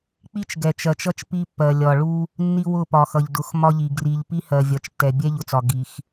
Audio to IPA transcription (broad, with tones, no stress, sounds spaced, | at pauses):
k͡p i˦ t͡ʃ ɡ ɛ˨ t͡ʃ ɜ˨ t͡ʃ ʌ˦ t͡ʃ p i˦ pː ɜ˨ lʲ ɒ˨ ɭ u˦ | nː i˦ w ʊ˦˨ p ɒ˨ x ʌ˨ ʎ d ʊ˨˦ x m ɒ˦ ʎ i˨ ɡ r i˨ ʎ p i˦ h ɜ˨ vʲ ɒ˨ t͡ʃ tː ɛ˨ bʲ ɛ˦ ʎ ʊ˨ t͡s ɒ˨ ɡ i˨ x